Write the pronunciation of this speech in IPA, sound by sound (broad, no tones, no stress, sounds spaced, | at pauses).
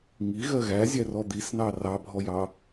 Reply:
ŋ i ɣ ɜ ɣ æ zʲ æ r ɔ d̪ i s n ɑ r ɑ bʱ ɔ j ɑ